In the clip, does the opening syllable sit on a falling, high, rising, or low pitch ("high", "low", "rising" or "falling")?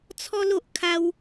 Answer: high